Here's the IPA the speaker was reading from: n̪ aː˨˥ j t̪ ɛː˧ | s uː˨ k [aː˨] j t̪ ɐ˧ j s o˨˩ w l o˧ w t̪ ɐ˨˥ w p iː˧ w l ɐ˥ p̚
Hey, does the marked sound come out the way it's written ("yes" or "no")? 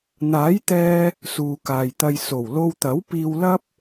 yes